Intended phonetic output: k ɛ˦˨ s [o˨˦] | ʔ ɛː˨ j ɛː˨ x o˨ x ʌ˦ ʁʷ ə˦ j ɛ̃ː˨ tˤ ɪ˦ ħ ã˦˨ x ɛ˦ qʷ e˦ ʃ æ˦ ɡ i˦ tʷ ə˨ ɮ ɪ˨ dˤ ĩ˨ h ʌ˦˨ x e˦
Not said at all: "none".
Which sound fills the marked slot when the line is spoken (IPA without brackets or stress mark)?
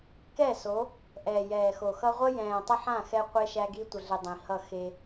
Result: o˨˦